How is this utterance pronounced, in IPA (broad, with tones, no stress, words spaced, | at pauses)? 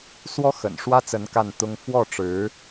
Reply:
swɔ˥ xə̰˨˩nʂwä˥t͡sə˧˥n ka˥˩nt̪ʊ˥ŋ fwɔ˥˩ʈ͡ʂɻ̩˧˥